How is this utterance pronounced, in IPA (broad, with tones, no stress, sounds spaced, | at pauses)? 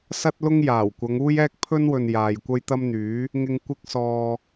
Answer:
s ɐ˥ t̚ l ʊ˥ ŋ j aː˨˩ w kʷ ɐ˨˧ ŋ uː˥ j ɛː˥ k̚ pʰ ɵ˥ n w ɵ˨ n j aː˨ j kʷ ɐ˥ j t̪ ɐ˥ m n̪ yː˨˥ | ŋ ɪ˧ ŋ kʷ ɪ˧ k̚ s ɔː˨